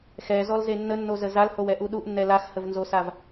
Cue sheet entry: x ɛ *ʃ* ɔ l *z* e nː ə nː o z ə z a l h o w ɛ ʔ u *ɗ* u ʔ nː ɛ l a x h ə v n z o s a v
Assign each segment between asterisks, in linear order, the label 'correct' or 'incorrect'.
incorrect: z, correct, correct

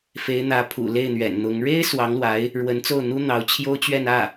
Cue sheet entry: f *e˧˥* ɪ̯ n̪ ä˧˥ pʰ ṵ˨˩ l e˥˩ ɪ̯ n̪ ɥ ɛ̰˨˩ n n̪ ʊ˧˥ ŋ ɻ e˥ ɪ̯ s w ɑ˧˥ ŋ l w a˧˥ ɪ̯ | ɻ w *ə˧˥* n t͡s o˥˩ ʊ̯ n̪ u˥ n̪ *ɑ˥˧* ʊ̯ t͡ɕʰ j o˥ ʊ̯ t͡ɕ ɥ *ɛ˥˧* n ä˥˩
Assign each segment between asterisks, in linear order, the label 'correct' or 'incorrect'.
correct, correct, incorrect: ɑ˧˥, correct

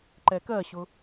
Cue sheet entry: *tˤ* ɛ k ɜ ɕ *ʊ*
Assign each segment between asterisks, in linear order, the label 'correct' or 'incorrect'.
incorrect: ǃ, correct

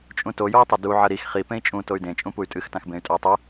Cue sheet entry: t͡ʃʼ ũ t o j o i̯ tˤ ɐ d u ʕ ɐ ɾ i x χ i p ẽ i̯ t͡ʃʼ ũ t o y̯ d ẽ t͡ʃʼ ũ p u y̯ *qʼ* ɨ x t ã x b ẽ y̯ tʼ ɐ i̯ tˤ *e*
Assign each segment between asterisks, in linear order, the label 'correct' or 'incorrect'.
incorrect: tʼ, incorrect: ɨ

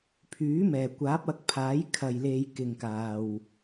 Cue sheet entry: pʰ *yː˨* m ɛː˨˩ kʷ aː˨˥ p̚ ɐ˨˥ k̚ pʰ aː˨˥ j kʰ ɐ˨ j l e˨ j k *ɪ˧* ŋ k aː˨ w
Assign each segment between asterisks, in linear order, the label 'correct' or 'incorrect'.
incorrect: yː˨˥, incorrect: ɪ˨

